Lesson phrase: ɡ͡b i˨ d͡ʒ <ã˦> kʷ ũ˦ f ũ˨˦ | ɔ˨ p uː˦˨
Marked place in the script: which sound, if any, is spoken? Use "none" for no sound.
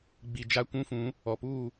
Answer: a˦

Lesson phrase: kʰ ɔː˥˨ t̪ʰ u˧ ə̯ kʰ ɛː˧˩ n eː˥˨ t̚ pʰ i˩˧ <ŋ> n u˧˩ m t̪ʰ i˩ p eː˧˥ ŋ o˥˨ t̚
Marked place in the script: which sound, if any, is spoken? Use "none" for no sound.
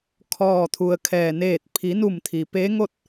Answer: none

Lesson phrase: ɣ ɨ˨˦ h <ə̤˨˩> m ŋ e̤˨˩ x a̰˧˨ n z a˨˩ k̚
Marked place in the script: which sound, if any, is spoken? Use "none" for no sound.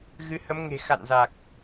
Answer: ə˨˦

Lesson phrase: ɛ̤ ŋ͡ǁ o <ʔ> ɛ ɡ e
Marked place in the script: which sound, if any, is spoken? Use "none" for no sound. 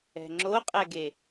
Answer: qʼ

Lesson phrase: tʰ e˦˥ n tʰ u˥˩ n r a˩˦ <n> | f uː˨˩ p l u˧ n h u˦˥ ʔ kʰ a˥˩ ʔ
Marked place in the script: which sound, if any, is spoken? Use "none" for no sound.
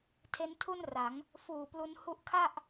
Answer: ŋ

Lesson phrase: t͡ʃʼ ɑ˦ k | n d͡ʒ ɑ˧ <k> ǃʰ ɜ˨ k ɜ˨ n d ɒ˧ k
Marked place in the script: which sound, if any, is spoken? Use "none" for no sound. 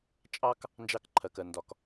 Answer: k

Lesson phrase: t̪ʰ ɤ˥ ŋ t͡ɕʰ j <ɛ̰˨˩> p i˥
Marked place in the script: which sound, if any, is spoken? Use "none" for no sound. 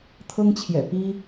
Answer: ɛ̰˨˩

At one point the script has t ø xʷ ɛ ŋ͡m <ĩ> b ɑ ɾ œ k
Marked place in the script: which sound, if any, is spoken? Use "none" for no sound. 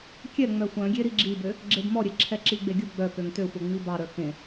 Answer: i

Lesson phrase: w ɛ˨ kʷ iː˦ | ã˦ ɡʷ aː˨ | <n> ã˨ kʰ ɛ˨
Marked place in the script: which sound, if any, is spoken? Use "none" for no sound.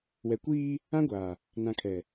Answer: n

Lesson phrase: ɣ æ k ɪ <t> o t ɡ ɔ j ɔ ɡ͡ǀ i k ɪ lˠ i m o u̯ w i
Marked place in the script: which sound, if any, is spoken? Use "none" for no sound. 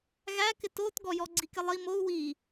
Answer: t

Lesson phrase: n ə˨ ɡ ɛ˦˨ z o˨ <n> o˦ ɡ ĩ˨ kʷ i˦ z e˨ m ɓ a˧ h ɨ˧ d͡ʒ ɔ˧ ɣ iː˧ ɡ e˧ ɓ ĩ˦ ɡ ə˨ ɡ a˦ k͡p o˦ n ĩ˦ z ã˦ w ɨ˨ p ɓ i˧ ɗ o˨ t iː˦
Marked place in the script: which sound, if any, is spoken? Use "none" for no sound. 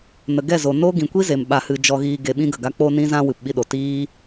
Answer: n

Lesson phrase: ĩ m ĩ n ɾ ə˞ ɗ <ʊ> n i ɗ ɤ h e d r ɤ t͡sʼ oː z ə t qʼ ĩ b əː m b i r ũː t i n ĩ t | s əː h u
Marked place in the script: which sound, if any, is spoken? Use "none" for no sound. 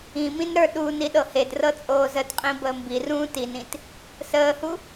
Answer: u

